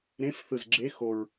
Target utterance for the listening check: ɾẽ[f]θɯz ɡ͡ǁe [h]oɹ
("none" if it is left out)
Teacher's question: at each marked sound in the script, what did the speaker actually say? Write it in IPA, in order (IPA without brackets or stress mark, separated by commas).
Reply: f, x